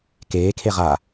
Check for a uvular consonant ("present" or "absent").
present